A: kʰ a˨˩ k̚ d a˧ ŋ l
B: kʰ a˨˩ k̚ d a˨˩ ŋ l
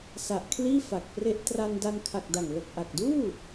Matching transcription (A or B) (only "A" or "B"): B